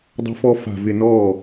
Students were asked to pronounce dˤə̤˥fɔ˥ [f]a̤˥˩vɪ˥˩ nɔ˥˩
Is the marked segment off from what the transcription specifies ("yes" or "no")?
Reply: no